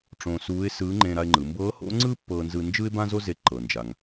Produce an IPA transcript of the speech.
ʈ͡ʂ õ˧ s uː˧˥ ɪ̯ s ɯː˧˥ ŋ͡ǃ ẽ˧ ɾ a˧ ɪ̯ ŋ͡ǃ ɯ˩˧ m b ɤː˧˥ h o̰˧˥ ŋ͡ǀ ɯ˥ pː ɤː˧ n z ɯ˧ n d͡ʒ ɯ˥ ɪ̯ b ã˥ z o˥ z e˧ ǃ ɤ˩ n d͡ʒ a˩ ŋ

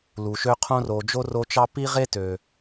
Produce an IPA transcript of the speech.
l u˩ ʃ ø˦ qʰ õ˦ r o˨ d͡ʒ o˥ r o˦ t͡ʃ ɑ˥ p i˥ ʁ e˥ t ø˩

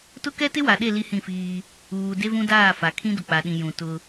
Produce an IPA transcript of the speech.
t ʊ˦ k ɛ˦ t ɪ˦ w a˨ ɗ e˦˨ l i˦ h ĩ˦˨ f iː˦ | uː˨ d e˦ v ũ˦ d aː˦˨ f a˨ kʰ ĩ˦ d ʊ˨ k͡p a˨ ɗ ĩ˨ j ũ˨ t ʊ˦

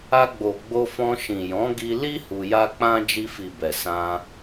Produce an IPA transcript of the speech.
a˧ ɡ͡b o˨ ɡ͡b o˧ f ɔ̃˧ ʃ ĩ˨ j ɔ̃˨˦ ɡ i˧ l i˦ h u˧ j a˦ k͡p ã˦ d͡ʒ i˧ f i˨ b ɛ˨ s ã˧

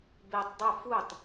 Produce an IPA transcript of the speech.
b e tˤ dˤ o f u tˤ

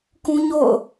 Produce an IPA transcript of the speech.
k ũ˦ ɲ o̰˦˨ ʊ̯

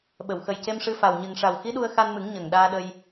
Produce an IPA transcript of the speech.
ɓ ə˨˩˨ w x ə˨˩ j c e˧ m ʂ ɨ˧ f a˨˩ w ɲ ɨ˨˩ ŋ ʂ a˨˩ w x i˧˥ ɗ u˧ ə̯ x a˧ n m ɨ˨˩˦ ŋ ɲ ə˨˩ ŋ ɗ aː˧ ɗ ə˧ j

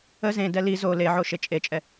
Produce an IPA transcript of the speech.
ə z ẽ d ɛ l i z o l e ʕ o ʃ e t͡ʃʼ e t͡ʃʼ ɛ

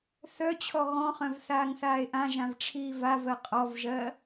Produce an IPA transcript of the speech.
θ œ t͡ɕʰ ɔ ɣ ɔ̃ χ œ̃ v θ aː ŋ θ aː e̯ ʔ ã ʒ ã v ʈ͡ʂʰ iː v a v ɜ qʼ ɔ v ʒ ɜ

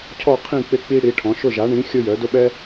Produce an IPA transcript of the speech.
cʰ ɔ˥˧ qʰ ĩ˥˧ k͡p ɪ˥ k͡p i˥ ɽ i˨˥ ʈʰ ɔ̃˨˥ ʃ ʊ˥˧ ʒ a˨˥ ɳ ĩ˨˥ xʲ ʊ˥ j œ˨˥ d ʊ˥ ɓ ɛ˥

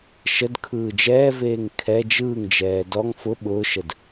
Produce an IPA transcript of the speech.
ʃ ə d kʰ ɯː d͡ʒ ɛː v eː ŋ kʰ ɛ d͡ʒ ɯː ŋ d͡ʒ ɛː d ɔ ŋ f ʊ ɓ ʊː ʃ ə d

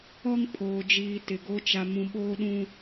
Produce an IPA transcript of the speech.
ɔ˦ ŋ pʰ oː˨ d͡ʒ iː˨ t ɪ˨ ɡ o˦ t͡ʃ a˨ m ũ˨ ɓ oː˦ ɗ ũ˦

